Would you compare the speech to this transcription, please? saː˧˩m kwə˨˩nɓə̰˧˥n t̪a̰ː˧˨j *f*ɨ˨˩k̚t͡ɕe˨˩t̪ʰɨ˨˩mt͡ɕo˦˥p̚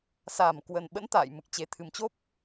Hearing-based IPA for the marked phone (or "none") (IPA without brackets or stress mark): m